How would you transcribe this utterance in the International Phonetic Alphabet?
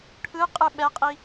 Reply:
ʈʰ ɯ qʼ ɯ ɓ ɛ qʼ i

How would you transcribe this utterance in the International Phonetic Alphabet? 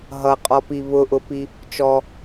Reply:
ɦ ʌ qʼ ɔ p i β ʊ ʔ ʊ p i | t͡ʃ ɔ

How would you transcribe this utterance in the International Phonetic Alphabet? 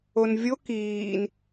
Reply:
o n vʲ o k iː n

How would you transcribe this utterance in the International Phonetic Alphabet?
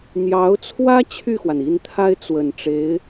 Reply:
n̪ j ɑ˧˥ ʊ̯ t͡sʰ w ä˥ t͡ɕʰ y˥˩ x w a˩ n i˥˩ n t̪ʰ a˥ ɪ̯ t͡s w ə˨˩ n ʈ͡ʂ e˧˥ ɪ̯

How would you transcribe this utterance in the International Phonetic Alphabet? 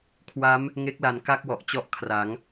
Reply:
kʰ w a˦˥ m | ŋ e˦˥ k̚ l a˨˩ n k a˥˩ k̚ w ɔ˨˩ ʔ t͡ɕ ɔ˥˩ ʔ kʰ r a˩˦ ŋ

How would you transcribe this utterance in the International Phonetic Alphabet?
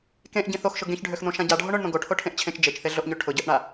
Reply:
k ẽ ʔ ɟ ĩ θ o x ʃ ʊ ɡ ẽ ç ɖʱ ø x n̪ õ ʃ ã ɟ a ɖʱ o ɳ ʊ ɳ n̪ õ ɡ o ʈʰ o ʈʰ ẽ ʔ t͡ɕʰ ẽ t͡ʃ d͡ʒ e t͡ʃ θ e ɮ o ʔ ɲ ø ʈʰ ʊ ɟ ø ʔ ɳ a

